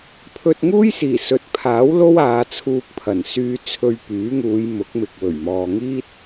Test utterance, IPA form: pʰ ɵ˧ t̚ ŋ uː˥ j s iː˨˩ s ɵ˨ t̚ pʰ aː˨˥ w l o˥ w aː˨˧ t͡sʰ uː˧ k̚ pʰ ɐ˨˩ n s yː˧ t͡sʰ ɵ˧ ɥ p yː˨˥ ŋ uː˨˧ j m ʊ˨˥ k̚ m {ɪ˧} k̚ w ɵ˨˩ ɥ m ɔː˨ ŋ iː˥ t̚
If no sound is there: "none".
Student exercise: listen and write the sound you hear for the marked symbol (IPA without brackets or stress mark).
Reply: ɪ˨